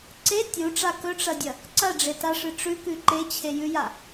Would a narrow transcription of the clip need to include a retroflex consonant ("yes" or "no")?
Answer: yes